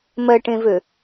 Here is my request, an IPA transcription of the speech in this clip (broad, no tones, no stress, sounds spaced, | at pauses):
m ɜ ʈ ẽ v ø